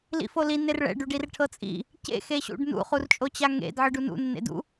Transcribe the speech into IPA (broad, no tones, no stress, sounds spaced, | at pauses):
l ḭ f o l i n e r ɭ ɛ̰ ɖ u ɖ i r ʈʰ ɤ t͡sʼ ḭ | c ḛ x e ɕ ṵ ɖ n ṵ χ u r t͡ʃʼ o t͡ɕ a ŋ ḛ d ʕ ɯ ɖ u n ṵ nː ḛ d ṵ